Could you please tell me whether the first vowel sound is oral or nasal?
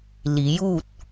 oral